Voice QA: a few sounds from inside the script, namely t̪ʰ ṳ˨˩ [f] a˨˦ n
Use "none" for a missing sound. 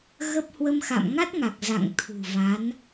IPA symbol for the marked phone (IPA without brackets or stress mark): v